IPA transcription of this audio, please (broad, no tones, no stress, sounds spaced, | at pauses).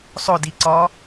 sˤ ʊ d i ǀ ɒ